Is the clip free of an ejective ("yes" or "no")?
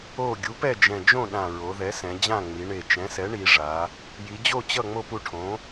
yes